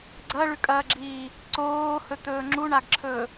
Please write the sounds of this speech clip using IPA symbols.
ɡ͡ǀ ɐ ɭ ʉ kʼ ɐː ɡ͡ǁ iː | ǀ oː h ɵ t̪ ɵː ŋ͡ǁ u ɳ a ɡ ǁʰ ɵː

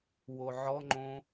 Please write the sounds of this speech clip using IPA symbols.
w o ʕ ɔ ŋ͡ǃ õ

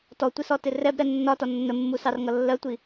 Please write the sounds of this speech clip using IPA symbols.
t ɔ tʷ ɪ s ɔ t ɪ r ɛ b ɾ ɛ nː ɒ t ɒ nː ə mː u s ɑ r ŋ ʌ lː ɜ tʷ i

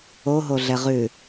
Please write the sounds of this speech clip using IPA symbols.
o ɦ o ɮ ɛ ʁ ʉ

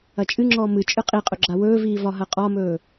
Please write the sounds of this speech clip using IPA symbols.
ɐ t͡ʃʼ ɨ ŋ͡ǁ ɔː m ɨ t͡ʃʼ ɨ qʼ i qʼ ɵ ɡ͡ǁ a w ɵː v iː v ɒ ɦ ɐ qʼ ɒ m ɵː

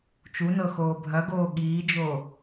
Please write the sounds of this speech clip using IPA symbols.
t͡ʃ u n ɤ x oː bʱ ɐ ɡ oː ɠ iː d͡ʒ o

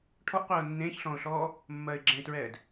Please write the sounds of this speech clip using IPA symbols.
ʈʰ ɔ ʔ qʷ ɛː ʊ̯ nː ẽː ç ɬ ɔ̃ː ʊ̯ ɬ ɔː | mː ɜː ɪ̯ ɡ͡ǁ ɛ̃ ɪ̯ t ɹ ɛː d

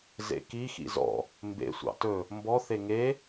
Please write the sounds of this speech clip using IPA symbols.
z ḛ k i x ḭ z ɔ̰ | m b ḛ sʷ ɑ̰ t ɵ | m b ɔ θ e ŋ e

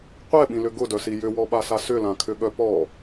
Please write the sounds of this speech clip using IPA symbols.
qʷ ɛ ɓ ĩ l ʏ ɡ ʊ d œ s i j ʏ w ɔ ɓ a s a s ʏ l ã kʰ ʏ ɠ œ p ɔ

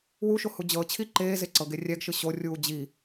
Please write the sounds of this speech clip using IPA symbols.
w u ʃ o h u d͡ʑ ɤ t͡ɕʰ i ǃ eː z e ǀ ɤ ɡ e rʲ ɛ ɡ ʃ ɯ ɕ o rʲ uː d͡ʑ i

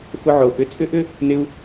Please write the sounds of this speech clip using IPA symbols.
f ʊ˧ ʕ o˩ ʔ ʏ˧ t͡sʼ ʏ˥ ʔ ʏ˥ | n ɪ˧ u̯

